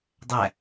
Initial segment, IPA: dˤ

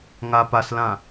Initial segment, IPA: ŋ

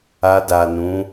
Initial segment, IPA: a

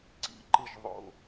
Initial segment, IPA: ǀ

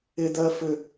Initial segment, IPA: ɪ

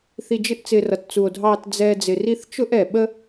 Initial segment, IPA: θ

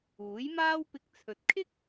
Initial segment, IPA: uː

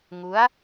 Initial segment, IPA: ŋ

